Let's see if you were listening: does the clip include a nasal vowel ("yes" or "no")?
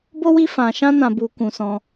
yes